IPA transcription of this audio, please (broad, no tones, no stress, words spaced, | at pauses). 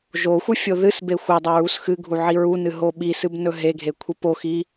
ʒoxʷɨ fʲoðɨsbe xʷɐdˤa ɹusxɨɡʱu ʕiɹunɨ ɦoɓisɨb nɵɦeɡʱe kʷʰipoxi